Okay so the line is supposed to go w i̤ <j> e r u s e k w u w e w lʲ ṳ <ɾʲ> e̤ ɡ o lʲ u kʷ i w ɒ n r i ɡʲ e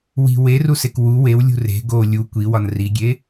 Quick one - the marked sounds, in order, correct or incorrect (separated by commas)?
incorrect, incorrect